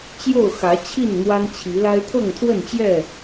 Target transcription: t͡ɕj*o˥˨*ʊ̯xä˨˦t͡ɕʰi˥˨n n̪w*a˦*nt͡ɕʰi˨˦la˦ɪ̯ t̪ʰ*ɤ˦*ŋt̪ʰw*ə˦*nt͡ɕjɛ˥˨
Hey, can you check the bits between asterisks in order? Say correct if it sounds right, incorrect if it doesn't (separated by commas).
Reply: correct, correct, incorrect, incorrect